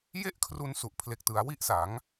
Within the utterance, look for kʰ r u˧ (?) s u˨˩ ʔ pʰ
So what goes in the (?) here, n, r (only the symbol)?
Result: n